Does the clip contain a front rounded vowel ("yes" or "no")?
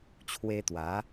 no